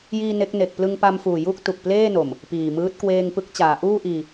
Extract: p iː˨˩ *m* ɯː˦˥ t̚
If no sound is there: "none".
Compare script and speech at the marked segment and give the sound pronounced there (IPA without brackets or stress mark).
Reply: m